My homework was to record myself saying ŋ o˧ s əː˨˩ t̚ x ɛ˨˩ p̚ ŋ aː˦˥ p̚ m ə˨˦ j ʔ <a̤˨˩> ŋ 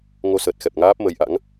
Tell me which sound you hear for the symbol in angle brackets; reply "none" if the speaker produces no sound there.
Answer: a̰˧˥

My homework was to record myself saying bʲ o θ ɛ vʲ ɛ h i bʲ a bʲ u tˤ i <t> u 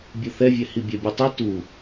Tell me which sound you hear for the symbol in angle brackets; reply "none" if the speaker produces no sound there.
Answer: t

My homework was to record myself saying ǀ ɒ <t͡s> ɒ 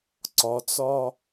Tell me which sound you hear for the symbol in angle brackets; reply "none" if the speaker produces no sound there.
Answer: t͡s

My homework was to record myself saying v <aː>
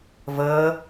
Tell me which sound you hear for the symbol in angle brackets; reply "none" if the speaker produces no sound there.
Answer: əː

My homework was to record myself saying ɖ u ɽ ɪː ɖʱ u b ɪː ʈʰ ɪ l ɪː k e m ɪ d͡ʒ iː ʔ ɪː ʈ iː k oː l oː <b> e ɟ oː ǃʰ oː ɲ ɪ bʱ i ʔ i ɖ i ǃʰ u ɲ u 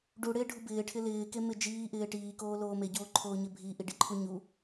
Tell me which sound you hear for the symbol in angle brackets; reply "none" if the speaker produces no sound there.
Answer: m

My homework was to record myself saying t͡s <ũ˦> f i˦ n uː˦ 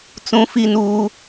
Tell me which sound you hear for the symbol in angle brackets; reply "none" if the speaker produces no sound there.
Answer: ũ˦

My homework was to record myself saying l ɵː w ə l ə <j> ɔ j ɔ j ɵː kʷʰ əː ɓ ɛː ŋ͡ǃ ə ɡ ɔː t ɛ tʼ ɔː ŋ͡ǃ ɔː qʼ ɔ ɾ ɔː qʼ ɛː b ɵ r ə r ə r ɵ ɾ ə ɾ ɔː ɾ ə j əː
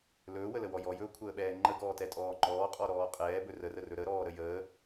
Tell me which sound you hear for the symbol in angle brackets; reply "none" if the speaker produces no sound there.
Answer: w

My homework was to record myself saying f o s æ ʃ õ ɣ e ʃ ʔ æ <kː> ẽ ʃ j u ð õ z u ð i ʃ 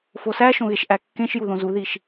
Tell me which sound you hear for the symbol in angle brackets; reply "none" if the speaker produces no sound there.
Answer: kː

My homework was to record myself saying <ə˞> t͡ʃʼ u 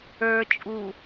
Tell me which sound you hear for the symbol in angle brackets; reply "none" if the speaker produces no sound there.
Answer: ə˞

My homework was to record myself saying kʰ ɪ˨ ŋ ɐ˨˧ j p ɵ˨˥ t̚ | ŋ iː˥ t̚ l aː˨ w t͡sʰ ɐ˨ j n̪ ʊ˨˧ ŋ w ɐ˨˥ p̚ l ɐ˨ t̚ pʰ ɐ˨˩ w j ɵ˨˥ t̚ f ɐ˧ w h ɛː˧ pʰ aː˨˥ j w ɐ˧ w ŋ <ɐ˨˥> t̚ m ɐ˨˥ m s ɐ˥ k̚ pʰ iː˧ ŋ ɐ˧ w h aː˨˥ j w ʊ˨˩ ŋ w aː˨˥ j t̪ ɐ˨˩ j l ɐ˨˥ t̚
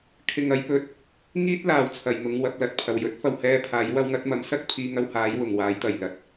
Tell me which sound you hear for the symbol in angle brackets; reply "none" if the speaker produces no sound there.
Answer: ɐ˨˥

